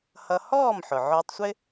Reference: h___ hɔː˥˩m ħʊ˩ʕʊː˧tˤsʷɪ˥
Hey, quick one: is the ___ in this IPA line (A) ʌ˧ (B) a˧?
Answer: A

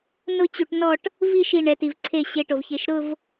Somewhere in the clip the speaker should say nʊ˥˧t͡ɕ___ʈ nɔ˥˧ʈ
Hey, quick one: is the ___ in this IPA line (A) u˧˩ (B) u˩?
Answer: A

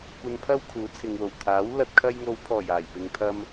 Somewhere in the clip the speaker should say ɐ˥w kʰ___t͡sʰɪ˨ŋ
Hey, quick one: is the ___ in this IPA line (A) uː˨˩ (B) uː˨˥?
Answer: B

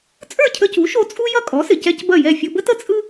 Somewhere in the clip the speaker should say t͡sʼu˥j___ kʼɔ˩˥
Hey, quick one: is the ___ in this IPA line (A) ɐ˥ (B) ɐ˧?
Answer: A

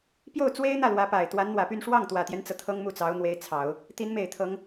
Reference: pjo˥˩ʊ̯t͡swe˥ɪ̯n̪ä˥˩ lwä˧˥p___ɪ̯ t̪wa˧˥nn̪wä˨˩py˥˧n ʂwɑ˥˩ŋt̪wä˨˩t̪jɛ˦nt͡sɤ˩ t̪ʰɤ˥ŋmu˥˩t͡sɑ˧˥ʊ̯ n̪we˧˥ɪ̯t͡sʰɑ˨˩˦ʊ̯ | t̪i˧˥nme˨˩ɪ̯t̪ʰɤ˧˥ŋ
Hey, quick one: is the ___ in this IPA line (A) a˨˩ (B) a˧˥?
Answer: A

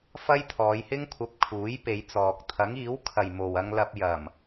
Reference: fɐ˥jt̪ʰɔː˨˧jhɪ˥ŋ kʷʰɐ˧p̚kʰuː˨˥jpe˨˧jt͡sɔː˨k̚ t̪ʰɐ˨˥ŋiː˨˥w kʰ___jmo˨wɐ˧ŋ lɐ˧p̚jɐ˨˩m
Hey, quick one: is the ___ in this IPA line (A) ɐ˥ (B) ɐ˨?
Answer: B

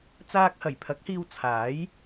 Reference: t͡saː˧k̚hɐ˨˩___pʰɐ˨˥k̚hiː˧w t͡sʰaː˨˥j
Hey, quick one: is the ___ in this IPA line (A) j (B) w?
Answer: A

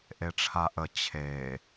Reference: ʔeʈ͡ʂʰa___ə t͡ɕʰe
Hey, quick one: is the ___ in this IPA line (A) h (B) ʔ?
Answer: B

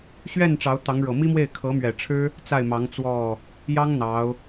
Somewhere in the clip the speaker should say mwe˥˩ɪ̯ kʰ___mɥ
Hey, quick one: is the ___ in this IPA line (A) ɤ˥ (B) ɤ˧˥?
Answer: B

